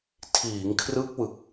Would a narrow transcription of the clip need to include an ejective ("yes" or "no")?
no